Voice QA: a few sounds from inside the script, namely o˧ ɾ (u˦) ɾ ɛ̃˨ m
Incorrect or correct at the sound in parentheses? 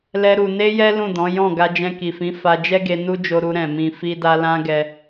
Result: incorrect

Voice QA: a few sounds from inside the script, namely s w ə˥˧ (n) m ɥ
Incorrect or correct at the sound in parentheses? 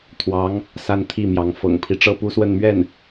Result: correct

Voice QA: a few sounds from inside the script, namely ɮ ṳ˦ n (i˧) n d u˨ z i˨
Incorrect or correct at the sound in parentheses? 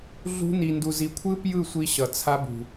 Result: incorrect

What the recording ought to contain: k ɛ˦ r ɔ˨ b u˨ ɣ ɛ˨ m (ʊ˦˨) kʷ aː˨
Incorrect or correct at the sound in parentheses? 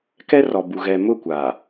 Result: correct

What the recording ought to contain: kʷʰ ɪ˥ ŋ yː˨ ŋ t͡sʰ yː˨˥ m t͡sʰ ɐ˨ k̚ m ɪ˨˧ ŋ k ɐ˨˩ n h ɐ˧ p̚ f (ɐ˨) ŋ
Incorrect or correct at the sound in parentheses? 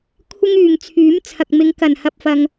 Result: correct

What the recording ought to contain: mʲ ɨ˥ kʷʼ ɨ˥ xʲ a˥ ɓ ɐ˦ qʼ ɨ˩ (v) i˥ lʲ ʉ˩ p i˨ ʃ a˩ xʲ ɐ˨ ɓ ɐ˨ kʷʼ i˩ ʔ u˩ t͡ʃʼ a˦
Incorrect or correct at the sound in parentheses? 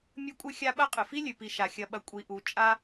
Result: incorrect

